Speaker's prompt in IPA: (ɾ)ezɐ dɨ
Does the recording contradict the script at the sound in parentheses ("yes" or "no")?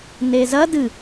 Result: yes